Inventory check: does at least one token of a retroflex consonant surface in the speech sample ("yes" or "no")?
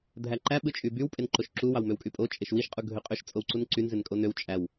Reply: no